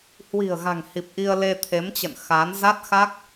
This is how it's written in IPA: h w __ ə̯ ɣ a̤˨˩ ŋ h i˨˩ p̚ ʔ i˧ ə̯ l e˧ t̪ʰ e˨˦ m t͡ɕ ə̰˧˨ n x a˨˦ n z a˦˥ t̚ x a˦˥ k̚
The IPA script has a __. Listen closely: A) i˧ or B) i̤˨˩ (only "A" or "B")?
B